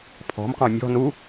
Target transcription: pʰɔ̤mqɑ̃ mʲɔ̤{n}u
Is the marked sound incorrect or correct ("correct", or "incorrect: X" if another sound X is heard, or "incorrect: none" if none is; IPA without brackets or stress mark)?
correct